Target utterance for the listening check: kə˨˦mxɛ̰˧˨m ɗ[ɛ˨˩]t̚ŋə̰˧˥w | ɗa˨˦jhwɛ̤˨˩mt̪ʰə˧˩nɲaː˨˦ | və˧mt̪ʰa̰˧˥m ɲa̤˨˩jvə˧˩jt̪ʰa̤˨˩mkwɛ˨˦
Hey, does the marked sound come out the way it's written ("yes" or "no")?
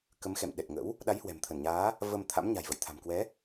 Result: yes